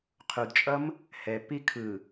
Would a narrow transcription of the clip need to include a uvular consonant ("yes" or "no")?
yes